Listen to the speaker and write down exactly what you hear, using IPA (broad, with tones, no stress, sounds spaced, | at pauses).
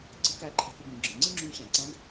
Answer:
ǀ ə̤˧˥ k æ˧˥ ǃʰ ɛ̤˧ k ʊ˧ ɡ ũ˩˧ ɡ͡ǁ ə̃˩˧ ŋ͡ǀ ɪ˥ ŋ͡ǁ ũ˧˥ ɕ æ̃˩˧ ǀ æ̃˧˥ ɡ